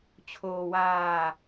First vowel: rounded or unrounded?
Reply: rounded